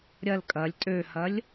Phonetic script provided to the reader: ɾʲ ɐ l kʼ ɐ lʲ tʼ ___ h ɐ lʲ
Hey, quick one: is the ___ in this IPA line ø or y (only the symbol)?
ø